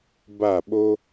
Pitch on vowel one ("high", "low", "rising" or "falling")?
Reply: falling